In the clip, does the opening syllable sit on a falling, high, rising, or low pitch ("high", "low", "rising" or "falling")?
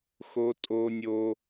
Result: high